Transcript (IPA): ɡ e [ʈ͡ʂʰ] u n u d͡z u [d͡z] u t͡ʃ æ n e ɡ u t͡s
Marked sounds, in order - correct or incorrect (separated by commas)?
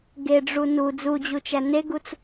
incorrect, incorrect